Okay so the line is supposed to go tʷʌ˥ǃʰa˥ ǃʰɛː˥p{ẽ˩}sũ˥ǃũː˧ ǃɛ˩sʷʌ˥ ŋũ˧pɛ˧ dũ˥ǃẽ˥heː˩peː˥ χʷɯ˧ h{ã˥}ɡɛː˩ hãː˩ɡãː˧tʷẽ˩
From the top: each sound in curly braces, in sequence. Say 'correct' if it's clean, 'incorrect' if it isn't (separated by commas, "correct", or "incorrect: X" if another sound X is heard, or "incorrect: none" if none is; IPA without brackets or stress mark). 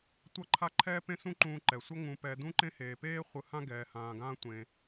incorrect: ẽ˥, correct